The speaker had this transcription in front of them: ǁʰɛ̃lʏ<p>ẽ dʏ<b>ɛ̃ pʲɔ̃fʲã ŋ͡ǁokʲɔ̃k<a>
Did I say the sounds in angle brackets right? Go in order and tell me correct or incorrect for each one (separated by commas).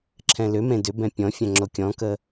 incorrect, correct, incorrect